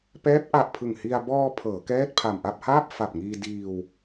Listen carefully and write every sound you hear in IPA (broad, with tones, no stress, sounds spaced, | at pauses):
p ɛː˦˥ p̚ ʔ a˨˩ ʔ pʰ ɯ˨˩ ŋ h i˧ a̯ b ɔː˧ pʰ ɤː˩˦ k ɛː˥˩ t̚ pʰ a˨˩ m ʔ a˥˩ p̚ h aː˥˩ p̚ f a˨˩ p̚ ŋ iː˧ d iː˧ w